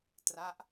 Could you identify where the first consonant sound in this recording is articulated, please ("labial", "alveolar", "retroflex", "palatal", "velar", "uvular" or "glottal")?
alveolar